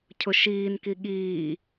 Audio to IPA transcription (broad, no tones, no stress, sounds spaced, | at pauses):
cʰ ʊ ʃ iː n k i ɠ iː